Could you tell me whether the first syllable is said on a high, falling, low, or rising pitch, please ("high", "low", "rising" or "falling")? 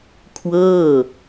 falling